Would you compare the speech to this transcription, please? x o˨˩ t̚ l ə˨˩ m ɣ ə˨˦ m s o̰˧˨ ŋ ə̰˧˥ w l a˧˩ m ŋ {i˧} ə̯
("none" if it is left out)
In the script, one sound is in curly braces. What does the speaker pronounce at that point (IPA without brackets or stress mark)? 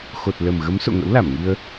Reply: i˧